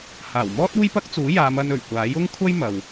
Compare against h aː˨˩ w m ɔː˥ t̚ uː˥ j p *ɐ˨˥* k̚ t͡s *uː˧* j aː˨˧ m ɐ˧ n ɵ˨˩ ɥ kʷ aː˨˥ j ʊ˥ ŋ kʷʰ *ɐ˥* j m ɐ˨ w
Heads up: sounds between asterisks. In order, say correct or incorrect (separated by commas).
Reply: incorrect, incorrect, correct